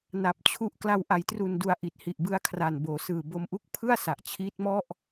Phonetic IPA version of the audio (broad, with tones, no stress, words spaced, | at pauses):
na˨˩p̚t͡ɕʰu˦˥ʔ kla˧w ʔa˩˦jtru˨˩ndu˨˩a̯ ʔi˨˩t̚hi˨˩ʔbɯ˦˥a̯kʰra˨˩n boː˩˦sɯː˨˩bo˧m ʔu˦˥k̚ pʰɯ˥˩a̯ sa˨˩ʔt͡ɕʰiː˦˥t̚mɔ˥˩ʔ